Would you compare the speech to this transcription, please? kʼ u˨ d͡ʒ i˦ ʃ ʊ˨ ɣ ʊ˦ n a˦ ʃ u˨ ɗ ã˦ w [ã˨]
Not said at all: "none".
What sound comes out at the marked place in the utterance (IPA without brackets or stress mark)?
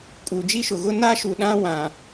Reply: ã˨